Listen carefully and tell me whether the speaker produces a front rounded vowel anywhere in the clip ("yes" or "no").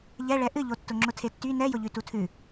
yes